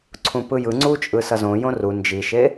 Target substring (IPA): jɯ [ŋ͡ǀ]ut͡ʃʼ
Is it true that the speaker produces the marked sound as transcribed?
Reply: yes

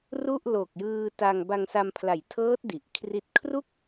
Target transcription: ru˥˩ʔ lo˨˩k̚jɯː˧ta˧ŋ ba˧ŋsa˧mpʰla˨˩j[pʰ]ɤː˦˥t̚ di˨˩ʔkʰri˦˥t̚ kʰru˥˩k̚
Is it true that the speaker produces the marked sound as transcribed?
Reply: no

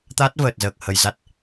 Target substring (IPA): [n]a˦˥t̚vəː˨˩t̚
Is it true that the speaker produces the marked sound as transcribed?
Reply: no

